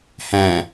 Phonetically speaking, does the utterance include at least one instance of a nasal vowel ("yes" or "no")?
yes